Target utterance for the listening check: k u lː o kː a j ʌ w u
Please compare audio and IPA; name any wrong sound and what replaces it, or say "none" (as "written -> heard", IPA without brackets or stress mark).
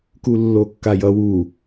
none